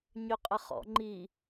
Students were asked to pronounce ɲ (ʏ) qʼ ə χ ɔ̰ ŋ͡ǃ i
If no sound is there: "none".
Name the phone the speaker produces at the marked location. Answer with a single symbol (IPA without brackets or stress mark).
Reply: ʏ